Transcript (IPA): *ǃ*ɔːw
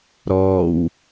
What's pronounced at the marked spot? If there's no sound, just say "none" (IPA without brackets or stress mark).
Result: ɾ